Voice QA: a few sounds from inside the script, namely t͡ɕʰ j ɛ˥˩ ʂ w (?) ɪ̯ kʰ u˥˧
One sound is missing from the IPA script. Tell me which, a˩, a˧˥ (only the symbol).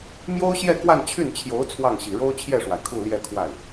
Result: a˩